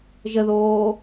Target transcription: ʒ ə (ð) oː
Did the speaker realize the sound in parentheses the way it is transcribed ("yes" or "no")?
yes